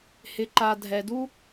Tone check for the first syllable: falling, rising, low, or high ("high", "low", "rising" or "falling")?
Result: low